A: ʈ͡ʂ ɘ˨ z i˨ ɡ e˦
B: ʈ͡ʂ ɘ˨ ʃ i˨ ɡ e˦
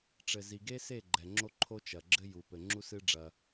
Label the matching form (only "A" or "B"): A